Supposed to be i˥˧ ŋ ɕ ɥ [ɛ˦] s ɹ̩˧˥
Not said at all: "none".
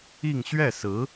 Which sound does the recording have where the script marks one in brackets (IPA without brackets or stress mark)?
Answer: ɛ˥˩